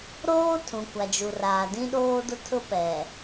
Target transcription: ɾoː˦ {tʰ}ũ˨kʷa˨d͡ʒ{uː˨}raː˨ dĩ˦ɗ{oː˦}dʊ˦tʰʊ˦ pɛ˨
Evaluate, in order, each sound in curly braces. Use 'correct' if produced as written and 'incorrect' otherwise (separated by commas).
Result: correct, incorrect, correct